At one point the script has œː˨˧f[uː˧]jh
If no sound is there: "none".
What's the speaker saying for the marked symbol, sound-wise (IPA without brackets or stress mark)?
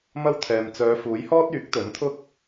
uː˨˥